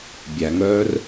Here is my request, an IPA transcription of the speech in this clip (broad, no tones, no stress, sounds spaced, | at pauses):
bʲ æ ŋ œː r